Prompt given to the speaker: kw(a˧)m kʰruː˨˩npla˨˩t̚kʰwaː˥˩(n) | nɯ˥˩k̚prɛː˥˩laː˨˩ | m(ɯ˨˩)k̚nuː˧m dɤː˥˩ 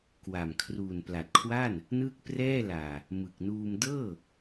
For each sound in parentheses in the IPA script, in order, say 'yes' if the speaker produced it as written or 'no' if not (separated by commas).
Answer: no, yes, yes